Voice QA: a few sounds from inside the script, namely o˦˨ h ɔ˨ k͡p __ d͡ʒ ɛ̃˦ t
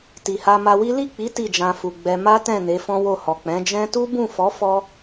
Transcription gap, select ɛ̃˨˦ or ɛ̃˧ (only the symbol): ɛ̃˨˦